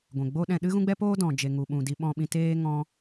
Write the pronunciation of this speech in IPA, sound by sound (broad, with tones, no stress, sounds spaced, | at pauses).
ɡʷ ɛ̃˨ ɡ͡b o˦ ɗ ɛ̃˧ ɗ ɨ˦ ɣ ũ˦ ɡ͡b ɛ˦ p oː˦ d ɔ̃˨ d͡ʒ e˨ ŋ u˨ ɓ ũ˨ d i˧ ɓ ɔ̃˧ ɓ ĩ˧ t eː˦ ŋ ɔ̃˦